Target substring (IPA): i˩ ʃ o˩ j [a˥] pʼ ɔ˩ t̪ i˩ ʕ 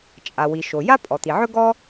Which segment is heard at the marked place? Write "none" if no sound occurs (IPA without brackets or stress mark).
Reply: a˥